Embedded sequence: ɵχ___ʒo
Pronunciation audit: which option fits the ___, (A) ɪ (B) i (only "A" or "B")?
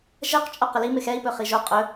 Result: B